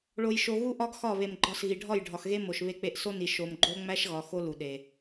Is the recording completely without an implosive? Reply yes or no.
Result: no